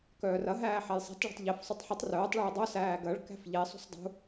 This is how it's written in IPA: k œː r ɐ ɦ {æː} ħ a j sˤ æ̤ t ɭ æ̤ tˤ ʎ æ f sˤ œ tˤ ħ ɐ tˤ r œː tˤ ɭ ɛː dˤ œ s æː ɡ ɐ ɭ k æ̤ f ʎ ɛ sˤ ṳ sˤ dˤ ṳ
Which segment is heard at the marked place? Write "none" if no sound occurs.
æː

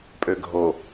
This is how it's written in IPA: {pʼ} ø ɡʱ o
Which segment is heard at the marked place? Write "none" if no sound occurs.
pʼ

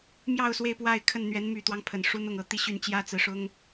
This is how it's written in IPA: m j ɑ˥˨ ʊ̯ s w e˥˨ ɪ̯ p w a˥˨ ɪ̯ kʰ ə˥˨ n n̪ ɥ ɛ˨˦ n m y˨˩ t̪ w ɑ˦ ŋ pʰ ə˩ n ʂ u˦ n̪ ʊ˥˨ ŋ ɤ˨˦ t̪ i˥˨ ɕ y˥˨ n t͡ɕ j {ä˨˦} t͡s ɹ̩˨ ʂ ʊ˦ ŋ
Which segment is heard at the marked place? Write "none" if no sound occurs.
ä˦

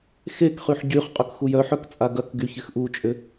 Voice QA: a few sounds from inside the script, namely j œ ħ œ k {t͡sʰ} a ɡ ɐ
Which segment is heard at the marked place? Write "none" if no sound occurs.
t͡sʼ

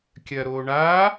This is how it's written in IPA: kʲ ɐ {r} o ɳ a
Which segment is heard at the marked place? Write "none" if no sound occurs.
ɾ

